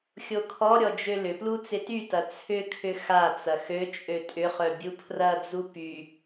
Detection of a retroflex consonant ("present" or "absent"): absent